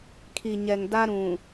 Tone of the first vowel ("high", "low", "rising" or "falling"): low